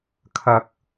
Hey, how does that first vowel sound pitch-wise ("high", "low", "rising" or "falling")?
low